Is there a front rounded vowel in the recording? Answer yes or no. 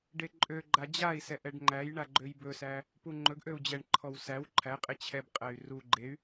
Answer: yes